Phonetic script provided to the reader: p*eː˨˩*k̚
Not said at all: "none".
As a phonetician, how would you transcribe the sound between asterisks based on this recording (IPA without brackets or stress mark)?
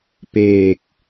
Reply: eː˨˩